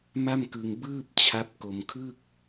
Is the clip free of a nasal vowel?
yes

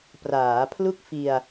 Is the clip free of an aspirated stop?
no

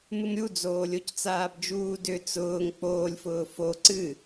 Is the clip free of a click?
no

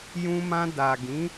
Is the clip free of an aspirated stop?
yes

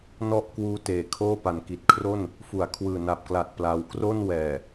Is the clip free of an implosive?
yes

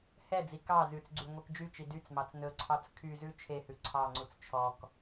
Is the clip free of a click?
no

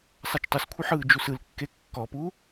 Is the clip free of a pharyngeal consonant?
no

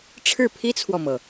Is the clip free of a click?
yes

